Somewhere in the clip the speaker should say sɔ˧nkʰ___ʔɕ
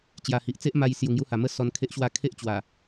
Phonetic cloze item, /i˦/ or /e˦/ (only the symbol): e˦